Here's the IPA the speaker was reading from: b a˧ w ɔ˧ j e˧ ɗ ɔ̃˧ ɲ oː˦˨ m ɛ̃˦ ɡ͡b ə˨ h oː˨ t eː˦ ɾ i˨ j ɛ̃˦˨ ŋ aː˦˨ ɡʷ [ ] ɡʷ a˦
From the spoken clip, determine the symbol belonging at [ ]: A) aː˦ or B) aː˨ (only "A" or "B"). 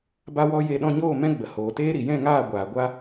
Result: B